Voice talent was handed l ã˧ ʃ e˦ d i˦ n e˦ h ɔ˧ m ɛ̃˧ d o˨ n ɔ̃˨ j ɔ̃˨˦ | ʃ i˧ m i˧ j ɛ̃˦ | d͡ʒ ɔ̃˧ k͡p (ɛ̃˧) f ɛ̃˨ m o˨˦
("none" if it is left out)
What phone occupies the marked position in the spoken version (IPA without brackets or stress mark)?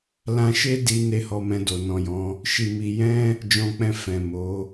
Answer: ɛ̃˧